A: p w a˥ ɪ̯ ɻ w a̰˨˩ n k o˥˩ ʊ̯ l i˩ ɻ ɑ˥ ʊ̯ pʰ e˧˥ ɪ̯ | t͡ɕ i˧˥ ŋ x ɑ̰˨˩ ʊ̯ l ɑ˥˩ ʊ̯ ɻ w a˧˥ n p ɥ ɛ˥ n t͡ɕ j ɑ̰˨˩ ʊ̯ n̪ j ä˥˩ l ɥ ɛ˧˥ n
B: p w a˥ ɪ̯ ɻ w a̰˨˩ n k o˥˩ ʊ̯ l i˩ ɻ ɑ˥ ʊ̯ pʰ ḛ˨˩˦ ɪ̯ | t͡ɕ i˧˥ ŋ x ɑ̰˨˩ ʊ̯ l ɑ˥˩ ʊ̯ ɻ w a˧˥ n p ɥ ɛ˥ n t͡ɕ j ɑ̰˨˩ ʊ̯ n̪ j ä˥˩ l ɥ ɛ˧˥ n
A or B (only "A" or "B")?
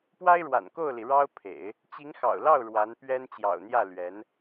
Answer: B